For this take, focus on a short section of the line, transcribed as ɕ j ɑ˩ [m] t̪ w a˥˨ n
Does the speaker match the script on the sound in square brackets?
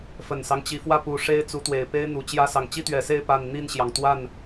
no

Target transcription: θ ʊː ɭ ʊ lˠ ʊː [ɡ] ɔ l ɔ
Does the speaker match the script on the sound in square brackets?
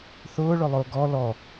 yes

